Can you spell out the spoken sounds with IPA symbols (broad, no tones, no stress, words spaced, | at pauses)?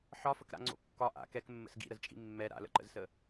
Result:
ħɒfəkɾa̰ŋ͡ǀo̰ kːɒ ʔa̰ kɛkmːə̰s ɡḭɾəzt͡ʃʼḭ mːɛ ɾa̰lə̰ǃə̰zsə